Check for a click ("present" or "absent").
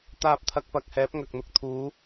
absent